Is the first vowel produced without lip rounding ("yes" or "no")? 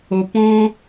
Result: no